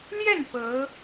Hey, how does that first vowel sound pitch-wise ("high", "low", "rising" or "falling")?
falling